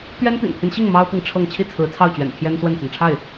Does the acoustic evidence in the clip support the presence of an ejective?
no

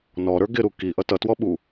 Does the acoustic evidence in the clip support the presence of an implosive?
yes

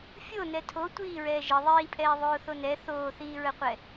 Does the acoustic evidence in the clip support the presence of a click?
no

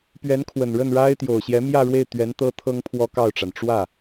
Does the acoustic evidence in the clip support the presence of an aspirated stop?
yes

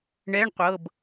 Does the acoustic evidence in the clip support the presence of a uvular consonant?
yes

